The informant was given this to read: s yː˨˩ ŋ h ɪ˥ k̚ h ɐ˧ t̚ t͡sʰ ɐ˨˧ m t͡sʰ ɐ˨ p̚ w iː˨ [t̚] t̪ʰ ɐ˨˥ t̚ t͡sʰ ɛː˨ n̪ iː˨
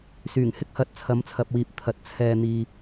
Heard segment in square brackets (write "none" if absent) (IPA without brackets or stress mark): p̚